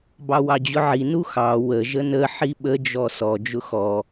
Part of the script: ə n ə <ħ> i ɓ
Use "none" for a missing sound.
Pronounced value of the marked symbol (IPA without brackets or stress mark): ħ